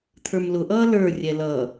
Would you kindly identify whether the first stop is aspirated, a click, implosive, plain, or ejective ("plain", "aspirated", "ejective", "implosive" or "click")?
aspirated